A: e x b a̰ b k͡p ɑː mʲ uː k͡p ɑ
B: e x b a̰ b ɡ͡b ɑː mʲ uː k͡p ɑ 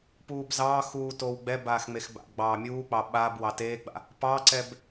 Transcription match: B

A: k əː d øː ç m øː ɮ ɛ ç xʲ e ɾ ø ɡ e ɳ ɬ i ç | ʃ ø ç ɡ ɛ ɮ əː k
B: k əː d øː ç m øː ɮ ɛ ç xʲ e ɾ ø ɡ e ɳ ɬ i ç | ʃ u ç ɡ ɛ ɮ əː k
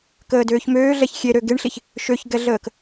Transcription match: A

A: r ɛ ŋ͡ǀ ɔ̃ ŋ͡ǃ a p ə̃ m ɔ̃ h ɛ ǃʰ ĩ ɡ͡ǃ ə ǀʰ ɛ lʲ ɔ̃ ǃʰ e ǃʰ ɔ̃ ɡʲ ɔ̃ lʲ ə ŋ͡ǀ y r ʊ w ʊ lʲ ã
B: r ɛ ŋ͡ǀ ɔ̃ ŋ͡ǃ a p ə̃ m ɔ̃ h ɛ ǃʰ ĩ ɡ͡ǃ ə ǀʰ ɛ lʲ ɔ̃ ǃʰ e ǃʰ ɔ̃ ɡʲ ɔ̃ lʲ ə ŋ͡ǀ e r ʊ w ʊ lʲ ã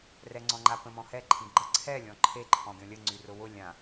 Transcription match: A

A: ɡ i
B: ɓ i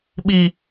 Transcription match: B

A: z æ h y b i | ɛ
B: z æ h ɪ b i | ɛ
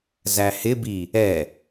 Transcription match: B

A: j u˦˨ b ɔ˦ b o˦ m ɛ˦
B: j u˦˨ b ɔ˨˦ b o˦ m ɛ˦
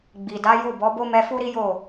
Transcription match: B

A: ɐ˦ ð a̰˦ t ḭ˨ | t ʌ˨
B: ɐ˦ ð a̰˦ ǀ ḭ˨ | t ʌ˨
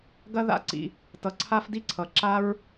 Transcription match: B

